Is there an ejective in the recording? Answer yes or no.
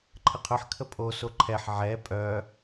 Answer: yes